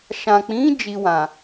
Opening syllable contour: low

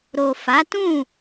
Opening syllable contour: low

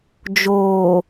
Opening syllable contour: low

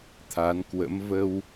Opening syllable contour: rising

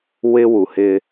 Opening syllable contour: high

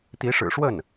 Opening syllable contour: rising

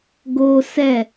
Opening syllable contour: high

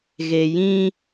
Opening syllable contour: low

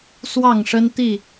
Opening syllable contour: falling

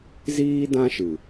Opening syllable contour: high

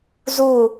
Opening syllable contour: falling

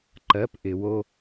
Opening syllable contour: rising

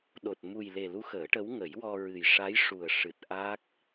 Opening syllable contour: low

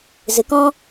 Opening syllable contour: rising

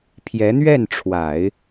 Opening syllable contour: rising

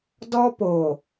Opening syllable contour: high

